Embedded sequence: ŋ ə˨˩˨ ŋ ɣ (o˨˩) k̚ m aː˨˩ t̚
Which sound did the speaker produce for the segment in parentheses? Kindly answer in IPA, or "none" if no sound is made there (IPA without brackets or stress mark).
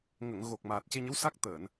o˨˩